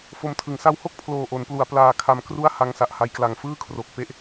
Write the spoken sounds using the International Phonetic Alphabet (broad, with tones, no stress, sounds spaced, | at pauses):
f o˧ m tʰ ɯ˩˦ ŋ s a˧ w h o˥˩ k̚ pʰ l oː˨˩ ʔ o˩˦ n p l u˩˦ a̯ p l aː˧ kʰ a˧ m k r u˥˩ a̯ h a˧ ŋ s a˨˩ ʔ h a˧ j k l a˨˩ ŋ f ɯː˥˩ kʰ r o˨˩ k̚ p e˦˥ ʔ